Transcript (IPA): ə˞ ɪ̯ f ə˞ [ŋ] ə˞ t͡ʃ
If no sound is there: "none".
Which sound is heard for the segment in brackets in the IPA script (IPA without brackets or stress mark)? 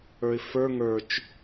ŋ